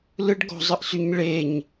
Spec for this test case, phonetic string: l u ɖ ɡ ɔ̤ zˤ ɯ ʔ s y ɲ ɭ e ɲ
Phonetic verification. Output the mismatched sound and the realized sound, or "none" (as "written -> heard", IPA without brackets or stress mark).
u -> ɯ